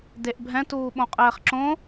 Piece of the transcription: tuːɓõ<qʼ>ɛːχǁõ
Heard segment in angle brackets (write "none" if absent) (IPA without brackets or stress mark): qʼ